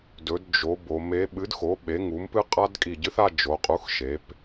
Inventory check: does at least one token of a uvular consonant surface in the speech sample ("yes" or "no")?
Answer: yes